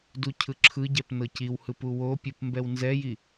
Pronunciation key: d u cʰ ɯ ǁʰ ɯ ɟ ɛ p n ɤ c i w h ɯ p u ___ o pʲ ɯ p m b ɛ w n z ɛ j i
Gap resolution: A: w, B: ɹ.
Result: A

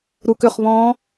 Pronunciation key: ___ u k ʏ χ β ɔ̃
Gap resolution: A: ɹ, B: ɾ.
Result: B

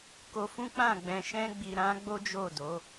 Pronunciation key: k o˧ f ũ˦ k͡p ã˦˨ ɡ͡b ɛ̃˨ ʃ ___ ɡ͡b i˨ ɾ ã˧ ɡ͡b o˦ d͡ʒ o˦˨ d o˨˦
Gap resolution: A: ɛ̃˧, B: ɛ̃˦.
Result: A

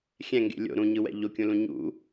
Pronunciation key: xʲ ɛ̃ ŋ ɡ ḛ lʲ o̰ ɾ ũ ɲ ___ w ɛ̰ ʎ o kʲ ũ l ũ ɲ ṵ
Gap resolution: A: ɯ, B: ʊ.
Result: A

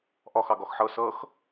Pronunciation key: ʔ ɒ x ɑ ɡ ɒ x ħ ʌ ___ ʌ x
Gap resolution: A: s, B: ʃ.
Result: A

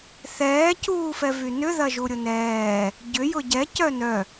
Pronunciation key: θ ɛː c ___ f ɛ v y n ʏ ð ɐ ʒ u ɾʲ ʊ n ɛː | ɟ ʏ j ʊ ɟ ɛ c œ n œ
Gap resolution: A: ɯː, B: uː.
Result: B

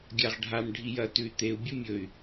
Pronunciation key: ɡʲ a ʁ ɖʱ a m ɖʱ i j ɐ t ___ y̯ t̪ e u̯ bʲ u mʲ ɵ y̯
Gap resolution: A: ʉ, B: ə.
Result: A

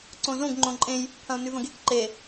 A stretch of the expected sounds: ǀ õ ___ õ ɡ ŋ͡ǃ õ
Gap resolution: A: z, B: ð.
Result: A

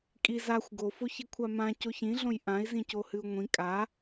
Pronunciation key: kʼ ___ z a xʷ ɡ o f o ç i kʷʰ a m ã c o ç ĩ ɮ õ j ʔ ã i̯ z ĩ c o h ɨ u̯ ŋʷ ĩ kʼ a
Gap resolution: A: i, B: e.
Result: A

